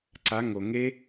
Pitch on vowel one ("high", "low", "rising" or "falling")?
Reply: rising